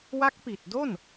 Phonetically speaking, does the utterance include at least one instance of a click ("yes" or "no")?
no